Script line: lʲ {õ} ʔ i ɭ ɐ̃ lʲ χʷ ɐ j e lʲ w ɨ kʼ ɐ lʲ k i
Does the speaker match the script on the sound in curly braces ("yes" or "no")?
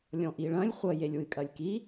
no